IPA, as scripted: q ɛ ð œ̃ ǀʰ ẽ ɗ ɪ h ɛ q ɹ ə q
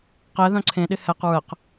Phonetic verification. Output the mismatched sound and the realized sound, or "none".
none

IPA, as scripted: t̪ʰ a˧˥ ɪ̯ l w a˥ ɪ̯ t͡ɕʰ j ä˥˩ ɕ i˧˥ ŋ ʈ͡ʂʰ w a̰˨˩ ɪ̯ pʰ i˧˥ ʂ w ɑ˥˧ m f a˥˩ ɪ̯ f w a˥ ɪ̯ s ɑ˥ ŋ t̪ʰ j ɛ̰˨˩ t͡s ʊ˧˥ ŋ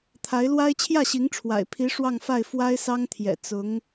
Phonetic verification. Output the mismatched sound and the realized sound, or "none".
m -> ŋ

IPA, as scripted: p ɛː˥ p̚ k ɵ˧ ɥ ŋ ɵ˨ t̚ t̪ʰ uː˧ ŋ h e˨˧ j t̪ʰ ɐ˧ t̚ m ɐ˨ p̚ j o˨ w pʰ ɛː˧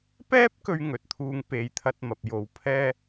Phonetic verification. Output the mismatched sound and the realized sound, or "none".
h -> p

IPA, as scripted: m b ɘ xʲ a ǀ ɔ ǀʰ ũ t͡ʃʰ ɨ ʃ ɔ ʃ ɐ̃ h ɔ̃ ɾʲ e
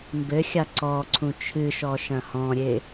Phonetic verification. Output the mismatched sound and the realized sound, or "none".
none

